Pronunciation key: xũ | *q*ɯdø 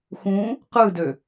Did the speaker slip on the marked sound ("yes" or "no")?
no